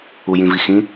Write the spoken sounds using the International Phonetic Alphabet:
u j ĩ v i x ĩ

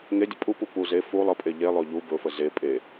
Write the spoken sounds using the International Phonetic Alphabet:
ŋ e dʲ ə pʼ u p u p u z e f u lˠ ə pʼ e ʎ e lˠ ɵ ʎ u b ɵ f ə z e pʼ e

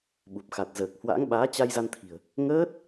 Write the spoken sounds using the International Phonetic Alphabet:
ɓ u˨˩ p̚ x a˨˩ t̚ z əː˨˩ k̚ h w a̰˧˥ ŋ ɓ aː˨˦ t͡ɕ a˧ j z a˧ n t̪ʰ i̤˨˩ ə̯ | ŋ əː˦˥ t̚

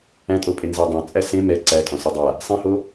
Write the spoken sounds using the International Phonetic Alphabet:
æ̃ tʼ o pʼ e n z a dˤ æ̃ t͡sʼ æ s ẽ m ɛ ǀ æ tʼ ɔ̃ s ɛ dˤ a | sˤ ĩ h o

